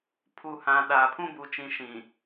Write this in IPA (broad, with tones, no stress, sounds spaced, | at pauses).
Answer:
pʰ u˨ h ã˨ ɗ aː˨ pʰ ũ˦ b u˨ t͡ʃ ĩ˨ ʃ ĩ˨